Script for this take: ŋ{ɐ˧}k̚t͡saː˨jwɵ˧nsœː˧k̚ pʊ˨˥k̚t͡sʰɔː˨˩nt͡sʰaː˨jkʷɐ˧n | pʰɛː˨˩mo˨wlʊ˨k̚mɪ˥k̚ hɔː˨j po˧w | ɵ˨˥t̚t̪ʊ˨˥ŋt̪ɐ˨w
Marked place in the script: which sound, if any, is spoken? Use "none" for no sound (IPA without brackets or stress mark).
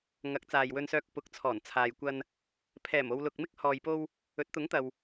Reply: ɐ˨˥